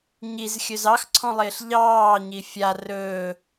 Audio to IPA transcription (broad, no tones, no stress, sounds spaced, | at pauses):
ɲ i z xʲ ɵ z ɑ x ǀʰ ɔ̃ lˠ ɪː ɬ ʎ ɑː ɲ i fʲ a r ɵː